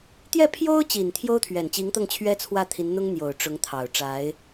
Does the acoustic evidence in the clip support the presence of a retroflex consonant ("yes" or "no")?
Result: yes